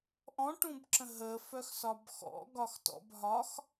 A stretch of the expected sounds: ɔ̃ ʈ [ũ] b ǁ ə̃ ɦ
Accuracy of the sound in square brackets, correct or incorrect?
correct